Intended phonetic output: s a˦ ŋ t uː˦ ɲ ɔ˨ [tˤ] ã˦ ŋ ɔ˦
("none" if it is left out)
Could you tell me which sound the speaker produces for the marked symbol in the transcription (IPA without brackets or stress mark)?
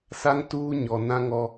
n